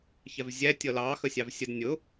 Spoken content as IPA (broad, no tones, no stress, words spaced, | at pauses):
çɛvzʲæ tʲʌlɑ xəsʲɑvsʲəd nʲʊ